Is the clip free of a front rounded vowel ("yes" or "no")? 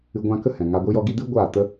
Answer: yes